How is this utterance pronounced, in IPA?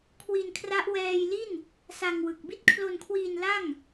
kʰwi˧nkʰra˦˥ʔ wɛː˧jli˥˩n | sa˧ŋwɯ˨˩k̚ bi˦˥t̚kʰlo˧nkʰwiː˧n la˥˩ŋ

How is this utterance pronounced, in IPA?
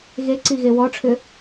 ɣeǀiɣe wɔʈ͡ʂʰʏ

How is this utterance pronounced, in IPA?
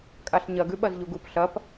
kʼaɬɲɐ ɡʉɓɐzʎuɡup ɬɐp

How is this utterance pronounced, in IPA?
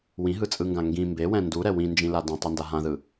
wĩɦɯt͡sʼɯŋɡã ŋɡĩ mbewɛ̃ nduɾɛ wĩnd͡ʒĩla dẽtˤinda ɦãðɯ

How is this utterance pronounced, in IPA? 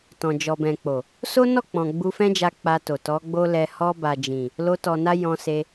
tɔ̃˨d͡ʒɔ˨bɛ̃˨k͡po˨ | so˦nɔ˦˨k͡pɔ̃˨ ɡ͡bu˧fɛ̃˦d͡ʒa˧ k͡pa˧to˨tɔ˨˦ɡ͡bo˦ lɛ˧ hɔ˧ba˨d͡ʒĩ˨ | lo˧tɔ˨na˧ jɔ̃˧se˧

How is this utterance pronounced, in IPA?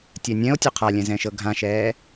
tʲɛnʲɛ̃o̯ tʲoqʰalʲɛ̃ zɛ̃ʃɤɡʱãʃɛː

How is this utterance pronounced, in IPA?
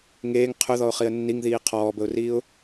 ŋeːŋ qʰɵðɔʊ̯χiə̯ nːiŋðiː qʰɔːbəʊ̯riːʊ̯

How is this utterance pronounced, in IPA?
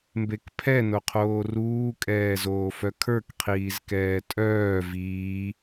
mbekpʰɛ noqʰoːruː kʼɛːzoːfœkʰə˞k qʰiːzkɛːtʼœː viː

